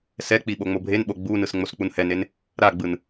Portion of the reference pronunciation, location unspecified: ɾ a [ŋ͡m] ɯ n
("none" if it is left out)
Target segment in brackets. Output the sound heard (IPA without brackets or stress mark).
ɡ͡b